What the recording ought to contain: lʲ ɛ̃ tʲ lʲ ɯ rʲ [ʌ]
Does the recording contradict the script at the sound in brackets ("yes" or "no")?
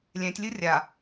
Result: yes